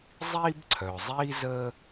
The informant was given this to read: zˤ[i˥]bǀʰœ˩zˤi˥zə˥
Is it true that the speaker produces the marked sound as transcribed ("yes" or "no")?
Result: yes